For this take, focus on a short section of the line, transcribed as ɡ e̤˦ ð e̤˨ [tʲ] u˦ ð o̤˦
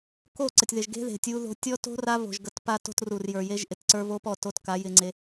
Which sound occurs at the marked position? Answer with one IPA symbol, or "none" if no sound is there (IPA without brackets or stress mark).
tʲ